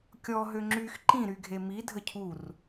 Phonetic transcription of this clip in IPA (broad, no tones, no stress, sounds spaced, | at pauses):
kʲ ɔ ɦ ø ŋ͡ǁ y x ǃ ĩ ɾ y ɡʱ e m i dʱ ə cʰ u r